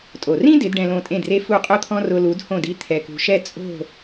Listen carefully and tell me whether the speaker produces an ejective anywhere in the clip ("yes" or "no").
yes